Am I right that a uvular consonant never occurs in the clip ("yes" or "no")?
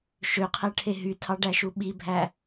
no